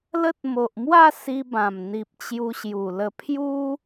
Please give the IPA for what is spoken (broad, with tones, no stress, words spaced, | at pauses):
lə˦t̚ mo˨ʔmwa˥˧si˧bã˨˩m n̪i˨p̚ t͡ɕju˧ɕju˨˩lə˧ pʰju˦